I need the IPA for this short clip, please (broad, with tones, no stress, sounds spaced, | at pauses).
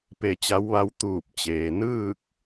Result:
p e˧˩ t͡ɕ a˧˥ w ʋ a˧˥ w t̪ uː˧˩ p̚ t͡ɕ eː˩ n ɯː˥˨ k̚